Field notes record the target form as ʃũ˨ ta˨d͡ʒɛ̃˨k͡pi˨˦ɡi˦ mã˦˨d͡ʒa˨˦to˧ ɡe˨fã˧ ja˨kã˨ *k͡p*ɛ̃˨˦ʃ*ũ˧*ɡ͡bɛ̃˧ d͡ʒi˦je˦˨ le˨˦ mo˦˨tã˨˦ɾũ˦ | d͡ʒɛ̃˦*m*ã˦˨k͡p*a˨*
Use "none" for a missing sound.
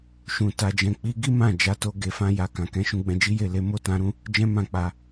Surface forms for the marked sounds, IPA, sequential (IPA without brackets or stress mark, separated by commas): k, ũ˧, m, a˧